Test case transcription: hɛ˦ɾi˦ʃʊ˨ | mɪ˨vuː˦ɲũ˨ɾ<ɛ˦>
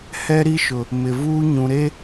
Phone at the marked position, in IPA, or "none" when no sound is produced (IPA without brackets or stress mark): e˦